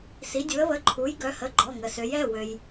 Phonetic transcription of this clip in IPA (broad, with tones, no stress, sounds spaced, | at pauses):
s i˩˧ dʲ u˩˧ ə̯ β ə˩˧˩ ǃʰ u˩˥ j ɡ œ˩˥ h ə˩˧˩ ɡ͡ǃ ɔ˩˧˩ ŋ ə˩ s ø˩˧ j ɛ˩˧˩ w ø˩ j